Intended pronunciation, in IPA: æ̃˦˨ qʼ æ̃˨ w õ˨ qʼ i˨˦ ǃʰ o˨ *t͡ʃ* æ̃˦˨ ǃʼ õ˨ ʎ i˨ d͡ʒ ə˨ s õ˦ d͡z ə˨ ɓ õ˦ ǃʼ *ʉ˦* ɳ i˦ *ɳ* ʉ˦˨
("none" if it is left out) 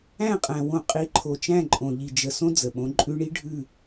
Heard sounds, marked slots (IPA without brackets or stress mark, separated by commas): t͡ʃ, ʉ˦, ɖʱ